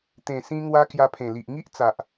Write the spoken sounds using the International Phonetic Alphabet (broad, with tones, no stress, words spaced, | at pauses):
t̪ẽ˨˩sĩ˧ŋwa˧ kja˧pʰẽ˨˩li˨ʔ ŋi˦ʔt͡sa˨ʔ